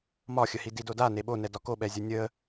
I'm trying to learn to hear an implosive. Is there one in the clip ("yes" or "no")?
yes